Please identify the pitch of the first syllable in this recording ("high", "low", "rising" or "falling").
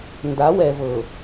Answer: rising